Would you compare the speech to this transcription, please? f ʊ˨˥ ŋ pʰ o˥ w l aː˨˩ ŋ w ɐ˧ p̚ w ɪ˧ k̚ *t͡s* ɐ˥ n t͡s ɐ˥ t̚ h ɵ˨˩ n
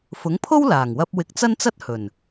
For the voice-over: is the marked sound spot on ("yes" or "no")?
yes